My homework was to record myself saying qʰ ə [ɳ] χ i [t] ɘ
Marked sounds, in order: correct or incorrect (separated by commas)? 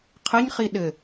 incorrect, incorrect